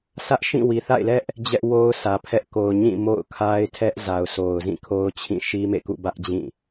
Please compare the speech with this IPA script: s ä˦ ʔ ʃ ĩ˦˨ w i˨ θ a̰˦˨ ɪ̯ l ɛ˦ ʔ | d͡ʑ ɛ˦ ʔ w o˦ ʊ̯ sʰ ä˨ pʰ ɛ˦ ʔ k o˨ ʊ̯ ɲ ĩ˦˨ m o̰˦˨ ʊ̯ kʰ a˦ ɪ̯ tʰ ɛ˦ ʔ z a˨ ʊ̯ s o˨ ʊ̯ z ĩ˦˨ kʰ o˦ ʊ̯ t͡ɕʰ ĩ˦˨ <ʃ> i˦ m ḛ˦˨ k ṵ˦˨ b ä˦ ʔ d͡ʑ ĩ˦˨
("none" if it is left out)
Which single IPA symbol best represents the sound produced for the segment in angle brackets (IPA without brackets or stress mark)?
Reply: ʃ